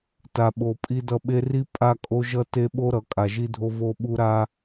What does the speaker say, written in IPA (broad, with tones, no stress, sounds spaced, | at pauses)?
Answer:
t a˨ ɓ o˨ pʼ i˦ d ʌ˦ ɓ e˦ r i˦ pʼ a˦ kʼ o˦ ʒ ʌ˦ t e˦ ɓ o˦ ɾ ʌ˨ kʼ a˨ ʒ i˦ dʱ o˦ v o˦ ɓ u˦ ɾ a˦